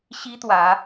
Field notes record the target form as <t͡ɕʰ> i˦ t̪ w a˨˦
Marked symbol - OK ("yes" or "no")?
no